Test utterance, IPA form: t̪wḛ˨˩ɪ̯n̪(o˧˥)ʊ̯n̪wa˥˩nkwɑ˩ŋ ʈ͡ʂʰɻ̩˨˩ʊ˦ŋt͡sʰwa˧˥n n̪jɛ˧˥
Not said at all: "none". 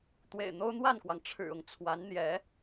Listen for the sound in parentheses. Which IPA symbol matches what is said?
o˥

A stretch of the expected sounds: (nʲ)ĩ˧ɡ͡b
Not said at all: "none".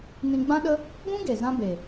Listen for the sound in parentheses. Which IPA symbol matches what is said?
n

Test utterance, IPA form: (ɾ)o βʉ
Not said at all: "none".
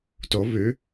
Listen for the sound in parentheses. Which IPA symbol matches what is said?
t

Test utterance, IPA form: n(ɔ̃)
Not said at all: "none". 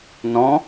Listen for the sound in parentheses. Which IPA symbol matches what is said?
ɔ̃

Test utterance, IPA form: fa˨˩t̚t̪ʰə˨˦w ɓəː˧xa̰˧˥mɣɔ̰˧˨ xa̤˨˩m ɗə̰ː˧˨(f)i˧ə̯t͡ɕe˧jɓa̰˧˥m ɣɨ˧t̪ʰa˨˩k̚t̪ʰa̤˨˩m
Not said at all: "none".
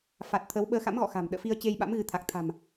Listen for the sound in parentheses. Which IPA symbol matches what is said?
f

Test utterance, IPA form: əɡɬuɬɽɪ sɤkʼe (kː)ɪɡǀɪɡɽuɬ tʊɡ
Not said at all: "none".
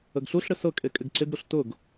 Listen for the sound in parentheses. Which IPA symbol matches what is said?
kʼ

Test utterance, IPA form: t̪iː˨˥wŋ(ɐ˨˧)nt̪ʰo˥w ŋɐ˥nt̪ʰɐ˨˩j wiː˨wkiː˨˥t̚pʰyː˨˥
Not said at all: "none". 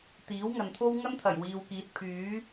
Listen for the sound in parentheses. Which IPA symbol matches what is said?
ɐ˨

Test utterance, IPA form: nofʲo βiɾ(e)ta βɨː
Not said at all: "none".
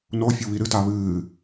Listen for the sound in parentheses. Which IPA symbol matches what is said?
ɨ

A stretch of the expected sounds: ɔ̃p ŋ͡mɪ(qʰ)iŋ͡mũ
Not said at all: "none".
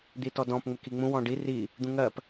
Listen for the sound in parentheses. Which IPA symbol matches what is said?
k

